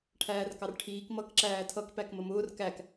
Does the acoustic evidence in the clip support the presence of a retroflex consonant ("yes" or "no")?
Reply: yes